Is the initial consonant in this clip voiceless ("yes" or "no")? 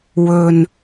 no